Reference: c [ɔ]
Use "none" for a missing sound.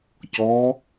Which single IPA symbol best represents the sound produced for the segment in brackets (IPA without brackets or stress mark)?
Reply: ɔ